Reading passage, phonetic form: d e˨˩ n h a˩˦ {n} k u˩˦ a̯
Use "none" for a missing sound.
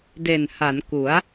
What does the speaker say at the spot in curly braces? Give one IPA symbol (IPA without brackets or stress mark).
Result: n